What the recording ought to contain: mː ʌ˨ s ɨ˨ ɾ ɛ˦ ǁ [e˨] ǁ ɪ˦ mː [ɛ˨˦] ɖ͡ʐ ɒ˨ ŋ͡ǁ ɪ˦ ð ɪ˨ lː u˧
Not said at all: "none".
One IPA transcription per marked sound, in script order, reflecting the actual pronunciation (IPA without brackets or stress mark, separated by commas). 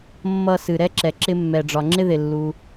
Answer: ɛ˨, ɛ˨